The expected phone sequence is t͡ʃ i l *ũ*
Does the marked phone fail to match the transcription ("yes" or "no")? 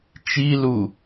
yes